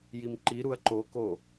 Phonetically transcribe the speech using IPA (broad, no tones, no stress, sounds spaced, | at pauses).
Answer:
j i m ǃ i ɾ u ɐ̯ ǃ o k o